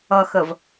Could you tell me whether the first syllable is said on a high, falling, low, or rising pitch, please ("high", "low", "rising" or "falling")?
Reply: low